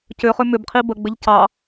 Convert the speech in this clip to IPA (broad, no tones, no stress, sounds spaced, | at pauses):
c ʏ χ ʏ m ʏ b qʰ i b ə ɡ͡b ɘ ʎ c ɑ